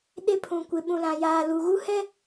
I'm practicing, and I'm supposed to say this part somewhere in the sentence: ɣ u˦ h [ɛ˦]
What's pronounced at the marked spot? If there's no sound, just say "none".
ɛ˦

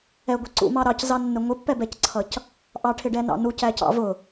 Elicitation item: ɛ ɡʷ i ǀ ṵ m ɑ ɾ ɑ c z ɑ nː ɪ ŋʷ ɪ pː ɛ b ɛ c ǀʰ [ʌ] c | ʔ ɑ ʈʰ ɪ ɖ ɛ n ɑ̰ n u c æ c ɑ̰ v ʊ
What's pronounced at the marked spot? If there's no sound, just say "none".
ʌ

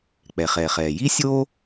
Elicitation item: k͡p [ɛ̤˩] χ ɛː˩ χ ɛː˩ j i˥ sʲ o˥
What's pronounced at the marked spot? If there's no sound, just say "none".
ɛ˩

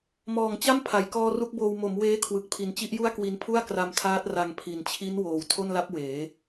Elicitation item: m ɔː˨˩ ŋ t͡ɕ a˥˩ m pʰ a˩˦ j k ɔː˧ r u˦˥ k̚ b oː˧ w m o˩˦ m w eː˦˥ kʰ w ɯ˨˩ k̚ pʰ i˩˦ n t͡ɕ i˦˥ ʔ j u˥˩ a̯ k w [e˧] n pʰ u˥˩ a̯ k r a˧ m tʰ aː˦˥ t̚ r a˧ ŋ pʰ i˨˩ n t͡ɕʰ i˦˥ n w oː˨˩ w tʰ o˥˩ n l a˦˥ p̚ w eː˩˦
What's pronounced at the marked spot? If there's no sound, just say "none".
i˧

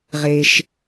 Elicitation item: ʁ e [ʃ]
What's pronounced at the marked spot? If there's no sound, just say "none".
ʃ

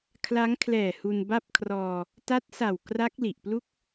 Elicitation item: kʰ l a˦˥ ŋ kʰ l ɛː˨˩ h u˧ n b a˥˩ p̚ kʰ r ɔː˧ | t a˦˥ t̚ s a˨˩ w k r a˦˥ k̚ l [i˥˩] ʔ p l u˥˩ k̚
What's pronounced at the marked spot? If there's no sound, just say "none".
i˨˩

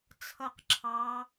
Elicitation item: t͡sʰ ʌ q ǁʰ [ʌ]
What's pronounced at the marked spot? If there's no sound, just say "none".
ɑ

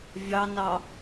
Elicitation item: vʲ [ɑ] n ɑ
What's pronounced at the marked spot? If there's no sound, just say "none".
ɑ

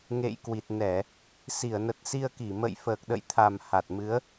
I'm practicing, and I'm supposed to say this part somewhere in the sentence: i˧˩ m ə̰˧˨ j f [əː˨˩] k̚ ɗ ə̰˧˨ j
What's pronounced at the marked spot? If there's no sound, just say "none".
əː˨˩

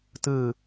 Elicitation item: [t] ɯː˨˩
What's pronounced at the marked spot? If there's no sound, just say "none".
t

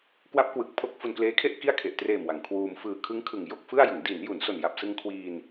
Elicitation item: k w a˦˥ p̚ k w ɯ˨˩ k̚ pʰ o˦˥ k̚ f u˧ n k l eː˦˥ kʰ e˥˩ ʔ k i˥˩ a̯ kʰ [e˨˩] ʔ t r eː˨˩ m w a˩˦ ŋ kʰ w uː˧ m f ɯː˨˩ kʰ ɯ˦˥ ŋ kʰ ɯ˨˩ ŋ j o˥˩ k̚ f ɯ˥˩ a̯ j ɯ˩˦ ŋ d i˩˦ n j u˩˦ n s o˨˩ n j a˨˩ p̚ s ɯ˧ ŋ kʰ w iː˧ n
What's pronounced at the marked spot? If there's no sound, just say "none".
e˨˩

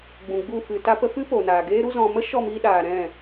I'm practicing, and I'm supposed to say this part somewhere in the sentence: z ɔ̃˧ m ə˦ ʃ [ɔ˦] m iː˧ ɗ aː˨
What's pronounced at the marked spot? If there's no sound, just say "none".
ɔ˦˨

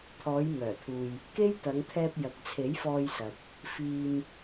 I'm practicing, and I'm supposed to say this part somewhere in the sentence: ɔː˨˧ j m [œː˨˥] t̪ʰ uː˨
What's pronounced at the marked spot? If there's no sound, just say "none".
œː˨˩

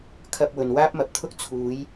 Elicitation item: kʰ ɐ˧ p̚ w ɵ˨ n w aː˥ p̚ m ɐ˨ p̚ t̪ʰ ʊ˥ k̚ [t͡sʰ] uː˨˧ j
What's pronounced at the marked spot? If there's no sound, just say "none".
t͡sʰ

